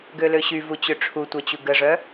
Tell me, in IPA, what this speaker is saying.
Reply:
ɡ ø l ø ɕ y v u t͡ɕ ø ʈ͡ʂʰ u tʷ œ t͡ɕ u ɡ ə ʐ œ

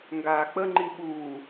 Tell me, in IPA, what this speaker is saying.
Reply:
ŋ ɡ aː k͡p ə ŋ͡ǃ i ɓ uː

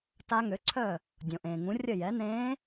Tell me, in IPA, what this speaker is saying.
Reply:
t a˧˥ ŋ ø˩˥ ǀʰ œ˥˩ | dʲ õ˩ ʔ ẽː˩ ŋ ũ˩˥ rʲ ə˥˩ j ɛ˩˥ n ẽː˧˥

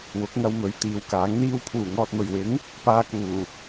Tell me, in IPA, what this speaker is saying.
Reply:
w ʊ˨˥ k̚ ŋ ɐ˧ w m ɵ˨˥ ɥ t̪ iː˨˧ w k aː˨˥ ŋ n̪ iː˥ w pʰ uː˨˩ ŋ ɔː˨ t̚ m ɵ˨˩ ɥ w ɪ˨˥ ŋ | p aː˧ k uː˨˩

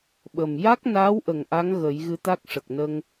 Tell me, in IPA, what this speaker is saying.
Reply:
ɓ ə˨˩ m j a˦˥ k̚ n aː˧˥ w ʔ ə˨˩ ŋ ʔ a˧˥ ŋ ɣ ə˨˩˦ j ɣ ɨ˧˥ t̪ a˦˥ k̚ ʂ ə˨˩ k̚ n ə˧ ŋ

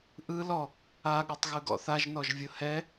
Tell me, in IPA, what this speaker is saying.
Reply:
ʔ ɯ l ɔ | a ɠ ɤ tˤ ɣ ɯ ɡ ɔ̰ θ a ʒ n ɔ ʒ vʲ ɤ h ɛ

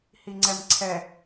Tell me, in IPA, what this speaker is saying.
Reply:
h i ŋ͡ǀ ɛ m ǀʰ ɛ

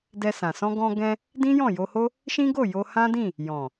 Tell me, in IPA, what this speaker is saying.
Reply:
d ɛ˧ s ã˨ s ɔ̃˧ ɡ ɔ̃˧ ɡ ɛ̃˧ | d ĩ˦ j ɔ̃˦˨ j o˧ h o˦ | ʃ ĩ˦ ɡ o˦˨ j o˧ h ã˦ d ĩ˦˨ | j ɔ̃˨

